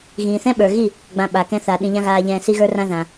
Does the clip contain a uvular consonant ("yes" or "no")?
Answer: no